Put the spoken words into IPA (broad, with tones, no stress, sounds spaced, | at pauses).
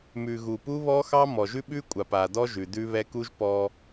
m ʉ˨ ɣ u˨ p u˦ β ɔ˦ x ɑ˦ m ɔ˨ ʒ ʉ˦ ɓ ʉ˦ kʷʼ a˨ p a˨ d ɔ˦ ʒ ʉ˨ d ʉ˦ β ɛ˦ k u˦ ʒ p ɔ˦